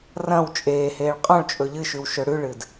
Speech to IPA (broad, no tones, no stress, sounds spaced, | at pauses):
r ɐ̃ w t͡ʃʼ eː h eː ɭ qʼ õ ɭ t͡ʃʼ ɵ ʎ ɨ ʃ ʉ w ʃ ɵ ɽ ʉ ɭ ɨ d